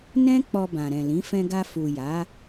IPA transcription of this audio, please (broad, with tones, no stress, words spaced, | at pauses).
nɛ̃˦ k͡pɔ˧bã˨ɾɛ̃˨lĩ˨˦ fɛ̃˧ɡa˧fu˨ ja˨˦